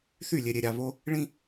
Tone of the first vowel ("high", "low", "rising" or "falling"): falling